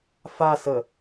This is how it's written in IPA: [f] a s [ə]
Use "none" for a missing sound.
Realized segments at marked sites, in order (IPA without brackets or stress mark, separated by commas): f, ə